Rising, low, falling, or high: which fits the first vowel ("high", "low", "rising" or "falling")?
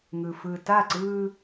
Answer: low